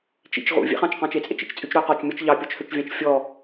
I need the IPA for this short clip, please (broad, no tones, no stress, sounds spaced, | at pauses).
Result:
t͡ʃ ḭ t͡ʃ ʁ ṵ vʲ ḛ χ ɑ̃ t͡ʃ q ɑ̃ t͡ʃ e t͡sʼ ḛ t͡ʃ ḛ t͡ʃ t͡sʼ y t͡ʃ ɾ ɵ q ɔ t͡ʃ mʲ ɔ t͡ʃ ʎ ɑ pʲ ɔ t͡ʃ h ø t͡ʃ vʲ ɑ̃ t͡ʃ fʲ ɔ